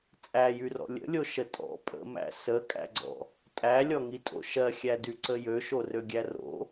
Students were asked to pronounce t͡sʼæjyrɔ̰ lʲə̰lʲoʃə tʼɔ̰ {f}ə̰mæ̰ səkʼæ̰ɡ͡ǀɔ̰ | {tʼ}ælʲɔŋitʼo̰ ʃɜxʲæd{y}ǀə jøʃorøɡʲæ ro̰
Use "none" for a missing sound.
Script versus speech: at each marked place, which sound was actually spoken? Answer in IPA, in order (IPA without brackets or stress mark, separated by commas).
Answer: pʼ, tʼ, y